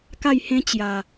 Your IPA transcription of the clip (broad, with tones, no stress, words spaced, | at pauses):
ka˥˧jhẽ˦ t͡ɕja˨˩